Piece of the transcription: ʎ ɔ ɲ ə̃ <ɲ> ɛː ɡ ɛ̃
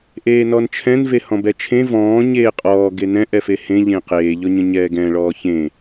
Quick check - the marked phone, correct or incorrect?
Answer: correct